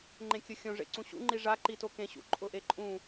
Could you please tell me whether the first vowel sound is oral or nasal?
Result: nasal